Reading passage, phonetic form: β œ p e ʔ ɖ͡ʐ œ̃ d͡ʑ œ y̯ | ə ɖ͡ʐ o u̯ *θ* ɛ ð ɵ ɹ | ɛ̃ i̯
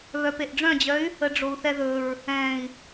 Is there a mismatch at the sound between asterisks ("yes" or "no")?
no